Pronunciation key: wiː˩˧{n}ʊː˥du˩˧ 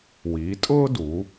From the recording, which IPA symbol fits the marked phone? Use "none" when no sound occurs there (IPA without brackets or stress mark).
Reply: tʼ